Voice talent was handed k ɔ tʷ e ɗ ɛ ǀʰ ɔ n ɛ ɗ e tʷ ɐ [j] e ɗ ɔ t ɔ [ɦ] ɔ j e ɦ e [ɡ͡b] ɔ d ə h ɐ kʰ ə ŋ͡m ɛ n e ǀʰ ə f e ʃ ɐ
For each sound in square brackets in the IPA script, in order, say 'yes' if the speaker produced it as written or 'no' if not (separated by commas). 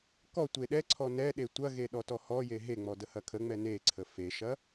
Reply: no, no, no